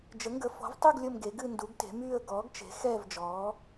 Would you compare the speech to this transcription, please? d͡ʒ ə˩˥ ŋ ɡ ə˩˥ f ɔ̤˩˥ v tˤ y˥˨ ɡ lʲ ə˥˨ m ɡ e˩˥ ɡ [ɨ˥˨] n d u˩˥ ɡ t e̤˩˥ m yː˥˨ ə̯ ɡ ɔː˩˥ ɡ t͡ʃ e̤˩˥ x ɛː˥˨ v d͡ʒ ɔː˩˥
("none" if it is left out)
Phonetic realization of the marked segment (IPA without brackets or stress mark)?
ɨ˥˨